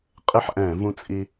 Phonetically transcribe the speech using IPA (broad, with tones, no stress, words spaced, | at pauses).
qʼɪ˥ħʔɛ̃˧˩˧ vũ˥t͡sʼi˥